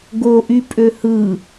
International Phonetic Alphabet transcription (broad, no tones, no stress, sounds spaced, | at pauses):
ɡ o ʔ y pʼ ø h ɯ